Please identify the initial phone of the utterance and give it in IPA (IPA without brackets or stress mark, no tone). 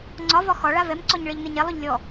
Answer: ŋ͡ǀ